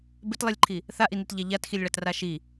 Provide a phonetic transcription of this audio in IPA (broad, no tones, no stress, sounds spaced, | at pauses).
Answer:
b ɪ t lˠ i lʲ ǃʰ i | θ a ʔ i n i t ʎ a ʎ a t x i lʲ ɭ a t r a ʃ i